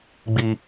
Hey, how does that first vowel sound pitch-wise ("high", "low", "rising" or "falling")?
low